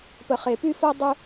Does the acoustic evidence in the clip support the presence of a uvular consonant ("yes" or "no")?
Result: yes